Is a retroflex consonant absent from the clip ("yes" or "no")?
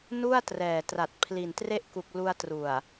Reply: yes